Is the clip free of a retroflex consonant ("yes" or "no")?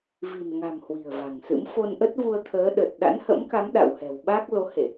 yes